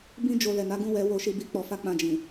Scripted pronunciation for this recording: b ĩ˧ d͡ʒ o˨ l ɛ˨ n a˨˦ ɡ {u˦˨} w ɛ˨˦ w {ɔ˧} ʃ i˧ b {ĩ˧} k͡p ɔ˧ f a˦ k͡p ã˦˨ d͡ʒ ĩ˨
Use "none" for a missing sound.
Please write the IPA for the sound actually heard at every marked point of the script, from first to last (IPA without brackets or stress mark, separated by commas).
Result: ũ˦˨, o˧, i˧